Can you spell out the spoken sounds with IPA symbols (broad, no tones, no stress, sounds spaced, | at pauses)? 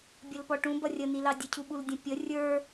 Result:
bʲ ə l p ɔ ʈ ũ b ʌ rʲ ə n i l ɑ dʲ ə cʰ u ɓ u l dʲ ə̃ pʲ ə rʲ ə˞